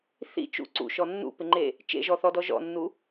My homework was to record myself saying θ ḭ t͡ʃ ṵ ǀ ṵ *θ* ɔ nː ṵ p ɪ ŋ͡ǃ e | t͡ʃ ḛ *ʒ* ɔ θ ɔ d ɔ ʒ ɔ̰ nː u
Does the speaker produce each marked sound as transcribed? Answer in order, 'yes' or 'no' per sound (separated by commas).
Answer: no, yes